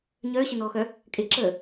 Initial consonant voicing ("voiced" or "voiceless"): voiced